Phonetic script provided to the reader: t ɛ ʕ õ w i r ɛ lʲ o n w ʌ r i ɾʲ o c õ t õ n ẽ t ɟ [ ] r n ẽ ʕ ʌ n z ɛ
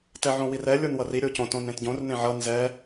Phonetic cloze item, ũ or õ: õ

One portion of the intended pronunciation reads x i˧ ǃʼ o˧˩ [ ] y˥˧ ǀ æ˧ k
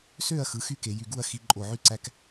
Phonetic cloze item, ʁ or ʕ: ʕ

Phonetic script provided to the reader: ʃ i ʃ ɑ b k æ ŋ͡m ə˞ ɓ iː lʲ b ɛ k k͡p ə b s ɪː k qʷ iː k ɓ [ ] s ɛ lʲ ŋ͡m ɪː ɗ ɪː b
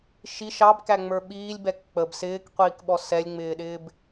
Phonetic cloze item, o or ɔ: ɔ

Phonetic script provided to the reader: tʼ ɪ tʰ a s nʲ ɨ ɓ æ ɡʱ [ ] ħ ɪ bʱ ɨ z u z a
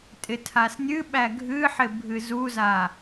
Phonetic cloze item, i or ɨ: ɨ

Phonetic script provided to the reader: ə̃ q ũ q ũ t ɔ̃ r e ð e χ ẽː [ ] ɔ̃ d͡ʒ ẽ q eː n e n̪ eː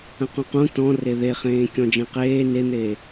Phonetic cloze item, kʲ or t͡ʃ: kʲ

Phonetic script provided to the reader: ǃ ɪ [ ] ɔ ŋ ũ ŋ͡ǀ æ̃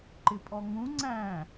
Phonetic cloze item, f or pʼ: pʼ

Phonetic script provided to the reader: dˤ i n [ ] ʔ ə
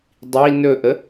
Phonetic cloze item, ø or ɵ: ɵ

